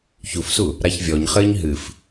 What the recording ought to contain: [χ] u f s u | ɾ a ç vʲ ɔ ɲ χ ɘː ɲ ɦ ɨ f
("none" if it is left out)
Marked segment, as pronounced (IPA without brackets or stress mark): ç